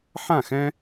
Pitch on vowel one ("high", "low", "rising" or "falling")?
falling